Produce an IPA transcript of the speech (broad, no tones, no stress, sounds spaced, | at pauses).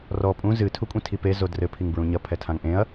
r ɔ pʼ ũ z ɨ tʰ u kʷʼ ĩ tʰ i p e z o d r ɘ pʰ i ŋ b ɹ ũ ɲ ɐ pʰ ɛ tʰ ã ŋ ʔ ẽ ɐ̯